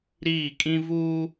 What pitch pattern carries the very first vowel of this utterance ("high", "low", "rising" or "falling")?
falling